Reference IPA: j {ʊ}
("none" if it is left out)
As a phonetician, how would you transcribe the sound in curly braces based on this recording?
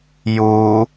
u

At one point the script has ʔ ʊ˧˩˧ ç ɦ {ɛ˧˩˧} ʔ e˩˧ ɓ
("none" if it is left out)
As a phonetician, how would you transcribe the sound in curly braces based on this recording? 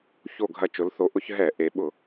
ɛ˧˩˧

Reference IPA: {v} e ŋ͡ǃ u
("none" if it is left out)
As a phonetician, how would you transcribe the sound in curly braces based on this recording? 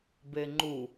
b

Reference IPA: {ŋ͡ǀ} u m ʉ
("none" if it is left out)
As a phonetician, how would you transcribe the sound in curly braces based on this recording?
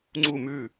ŋ͡ǀ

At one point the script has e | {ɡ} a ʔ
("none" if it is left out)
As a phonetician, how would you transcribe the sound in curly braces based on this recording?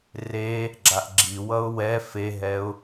ɡ͡ǁ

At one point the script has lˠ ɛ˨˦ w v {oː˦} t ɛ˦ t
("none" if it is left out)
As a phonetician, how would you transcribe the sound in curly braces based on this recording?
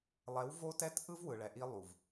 o˦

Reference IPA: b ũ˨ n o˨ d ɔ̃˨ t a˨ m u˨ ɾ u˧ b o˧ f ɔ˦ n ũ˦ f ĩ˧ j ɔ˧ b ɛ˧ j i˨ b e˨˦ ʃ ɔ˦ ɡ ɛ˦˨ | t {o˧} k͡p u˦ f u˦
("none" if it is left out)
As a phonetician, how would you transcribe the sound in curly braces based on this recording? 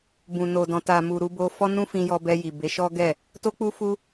o˦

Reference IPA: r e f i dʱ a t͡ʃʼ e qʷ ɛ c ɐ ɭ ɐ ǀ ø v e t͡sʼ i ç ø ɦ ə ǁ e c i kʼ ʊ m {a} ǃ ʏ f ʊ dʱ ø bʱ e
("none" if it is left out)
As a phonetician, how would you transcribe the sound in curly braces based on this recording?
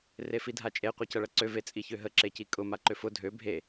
a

